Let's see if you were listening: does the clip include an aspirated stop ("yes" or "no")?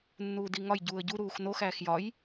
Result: no